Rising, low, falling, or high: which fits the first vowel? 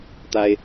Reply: high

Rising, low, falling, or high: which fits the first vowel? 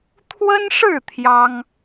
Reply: high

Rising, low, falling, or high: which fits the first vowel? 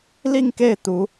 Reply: falling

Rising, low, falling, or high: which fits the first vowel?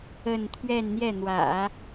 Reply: falling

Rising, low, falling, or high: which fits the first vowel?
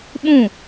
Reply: falling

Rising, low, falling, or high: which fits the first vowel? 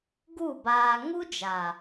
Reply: falling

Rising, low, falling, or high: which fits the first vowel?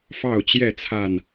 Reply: falling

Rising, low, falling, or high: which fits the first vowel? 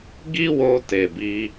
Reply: high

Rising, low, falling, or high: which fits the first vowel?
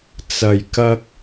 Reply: low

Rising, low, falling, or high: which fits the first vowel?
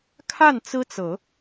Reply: falling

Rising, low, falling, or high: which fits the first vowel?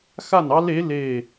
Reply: falling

